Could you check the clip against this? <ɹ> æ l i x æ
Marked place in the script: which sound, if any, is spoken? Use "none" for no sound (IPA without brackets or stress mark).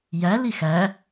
j